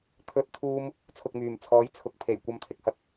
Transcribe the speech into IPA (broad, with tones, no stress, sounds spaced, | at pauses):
t̪ʰ ɵ˥ t̚ t̪ʰ uː˥ m | t͡sʰ ʊ˧ k̚ m yː˨ m t͡sʰ ɔː˨˥ j t͡sʰ ʊ˨˥ k̚ pʰ e˨˩ j kʷ ɐ˧ m t̪ʰ ɪ˨ k̚ h ɐ˨˥ k̚